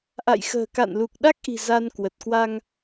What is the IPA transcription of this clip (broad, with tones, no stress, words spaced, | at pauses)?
ʔa̰˧˨jxə̤ː˨˩ka̰˧˨nlu˨˩k̚ ɗa˦˥k̚ʔi̤˨˩ za˧nkwə˨˩t̚kwa˧ŋ